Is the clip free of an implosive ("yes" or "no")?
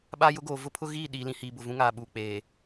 no